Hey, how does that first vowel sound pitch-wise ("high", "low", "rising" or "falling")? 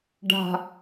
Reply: low